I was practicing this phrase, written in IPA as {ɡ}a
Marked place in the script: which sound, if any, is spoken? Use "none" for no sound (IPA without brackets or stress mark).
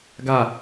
ɡ